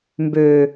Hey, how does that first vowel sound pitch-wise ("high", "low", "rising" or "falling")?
low